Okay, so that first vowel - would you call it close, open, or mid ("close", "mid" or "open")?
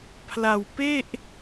open